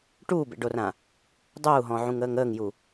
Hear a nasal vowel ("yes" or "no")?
yes